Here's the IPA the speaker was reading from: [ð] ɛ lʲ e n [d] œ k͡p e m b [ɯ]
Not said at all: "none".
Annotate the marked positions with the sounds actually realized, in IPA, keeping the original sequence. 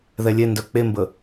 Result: ð, d, ə

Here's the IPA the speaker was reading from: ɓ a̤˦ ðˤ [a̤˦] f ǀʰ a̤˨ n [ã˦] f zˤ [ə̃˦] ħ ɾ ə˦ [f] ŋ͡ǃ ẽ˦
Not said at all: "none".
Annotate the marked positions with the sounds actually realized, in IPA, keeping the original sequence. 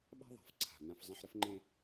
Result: a̤˨, ã˦, ə̃˦, f

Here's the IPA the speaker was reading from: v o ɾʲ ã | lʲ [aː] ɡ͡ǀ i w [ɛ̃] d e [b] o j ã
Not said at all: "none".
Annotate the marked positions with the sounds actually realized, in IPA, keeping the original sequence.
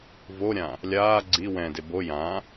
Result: aː, ɛ̃, b

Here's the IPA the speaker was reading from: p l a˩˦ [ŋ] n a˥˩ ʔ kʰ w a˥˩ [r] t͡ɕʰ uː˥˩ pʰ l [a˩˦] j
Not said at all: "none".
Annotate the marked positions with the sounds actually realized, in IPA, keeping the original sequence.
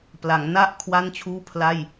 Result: ŋ, n, a˥˩

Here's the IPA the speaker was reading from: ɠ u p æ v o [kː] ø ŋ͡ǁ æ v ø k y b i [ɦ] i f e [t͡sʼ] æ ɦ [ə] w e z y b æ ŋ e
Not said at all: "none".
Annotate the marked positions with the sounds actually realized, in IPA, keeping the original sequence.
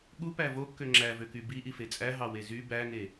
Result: kː, ʔ, t͡sʼ, ɑ

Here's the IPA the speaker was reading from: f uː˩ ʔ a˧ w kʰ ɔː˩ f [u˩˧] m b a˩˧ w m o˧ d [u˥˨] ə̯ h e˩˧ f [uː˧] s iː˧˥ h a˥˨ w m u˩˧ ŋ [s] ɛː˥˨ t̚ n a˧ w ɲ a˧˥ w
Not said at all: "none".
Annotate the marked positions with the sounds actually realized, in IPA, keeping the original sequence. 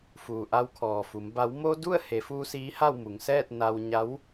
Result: u˩˧, u˥˨, uː˧, s

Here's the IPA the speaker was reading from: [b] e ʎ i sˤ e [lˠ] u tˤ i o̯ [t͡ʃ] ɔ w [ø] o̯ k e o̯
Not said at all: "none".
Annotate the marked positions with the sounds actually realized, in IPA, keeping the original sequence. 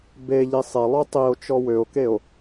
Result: b, lˠ, t͡ʃ, ø

